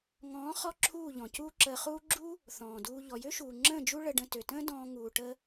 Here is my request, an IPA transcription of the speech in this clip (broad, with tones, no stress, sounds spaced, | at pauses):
ŋ ɔ̃ː˨˦ χ ɔ˦ ǁʰ uː˦˨ ʎ ɔ̃˨ c uː˦ ǁ əː˧ χ uː˦ ɡ͡ǁ u˦ | θ ɔ̃ː˨ d uː˧ ʎ ɔ˨ j ø˦ ʃ uː˨ ŋ͡ǁ ə̃ː˦˨ d͡ʒ u˦ ɭ ə˧ ɖ ə̃˧ t ø˨ t ə̃ː˦ d ɔ̃ː˧ ŋ uː˨ ʈ ə˦